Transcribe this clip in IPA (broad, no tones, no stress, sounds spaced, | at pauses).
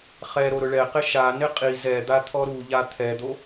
χ ɛ ɾ o ɾ ʊ ɭ ɛ q ɪ ʃ a n ɪ qʼ i z ɛ d̪ a t̪ʰ ɔ ɾ u ʎ a t̪ʰ ɛ d̪ o